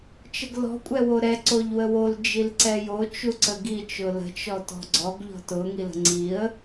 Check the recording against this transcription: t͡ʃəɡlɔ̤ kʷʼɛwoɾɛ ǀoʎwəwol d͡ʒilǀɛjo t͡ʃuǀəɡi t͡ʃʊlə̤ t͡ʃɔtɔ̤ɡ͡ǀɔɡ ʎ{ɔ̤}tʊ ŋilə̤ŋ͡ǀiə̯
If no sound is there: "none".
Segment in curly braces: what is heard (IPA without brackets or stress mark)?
ɔ̤